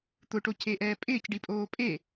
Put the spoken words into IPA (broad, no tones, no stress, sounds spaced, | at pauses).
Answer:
t̪ ʊ ʈ o c e ʔ ɛː pʼ ɪː c ɖ i pʼ oː pʼ e